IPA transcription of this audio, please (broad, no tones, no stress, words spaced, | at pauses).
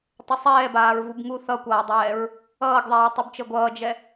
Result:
tˤəsˤɛːbaːɹ vubŋu θʌkʷʌːdˤɛːɹ | ʌːɡðˤɛːtˤubt͡ʃə ɡʷʌːd͡ʒɛ